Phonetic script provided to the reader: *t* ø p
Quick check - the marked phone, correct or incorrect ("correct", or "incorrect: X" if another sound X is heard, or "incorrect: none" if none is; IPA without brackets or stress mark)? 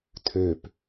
incorrect: tʰ